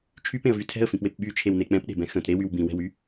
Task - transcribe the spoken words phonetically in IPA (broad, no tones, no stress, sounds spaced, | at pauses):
t͡ʃʰ y p ẽ ə̯ v y tʰ ɛ̤ ə̯ f ĩ p w e p ɓ y t͡ʃʰ e w n e k͡p ɛ̃ p ɗ e̤ b ɛ̃ x ə̃ t ɾ e w y w b ĩ w ɛ̤ w y